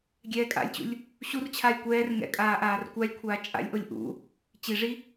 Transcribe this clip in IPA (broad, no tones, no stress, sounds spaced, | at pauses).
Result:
ɡʲ ɛː kʼ a̰ lʲ t͡ɕ ṵ lʲ | ɕ u r t͡ɕʰ aː lʲ kʷ ɛː r ŋ ɛ̰ kʼ aː ʔ aː r kʷ a lʲ kʷʰ aː t͡ʃʼ a̰ lʲ ʔ o lʲ ʔ ṵ | t͡ɕ i ʐ i